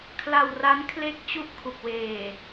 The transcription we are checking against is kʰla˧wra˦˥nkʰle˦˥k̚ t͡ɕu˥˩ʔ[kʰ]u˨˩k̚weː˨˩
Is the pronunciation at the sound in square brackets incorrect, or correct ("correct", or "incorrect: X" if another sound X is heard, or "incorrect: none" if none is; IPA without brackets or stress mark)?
correct